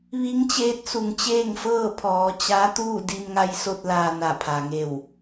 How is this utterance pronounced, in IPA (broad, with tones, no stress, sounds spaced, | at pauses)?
ʋ i˧˥ ŋ t͡ɕ eː˧˥ t̚ s u˩ ŋ t͡ɕ eː˥˨ ŋ f ɤː˥˨ pʰ ɔː˩˧ t͡ɕ a˧˥ t̪ uː˥˨ d i˧ m ŋ a˧ j s o˧ t̚ l aː˧ n a˧˩ pʰ a˩ ŋ e˧˩ w